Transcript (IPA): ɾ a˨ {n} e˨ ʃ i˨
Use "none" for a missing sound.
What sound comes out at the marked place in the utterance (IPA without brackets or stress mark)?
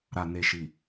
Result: n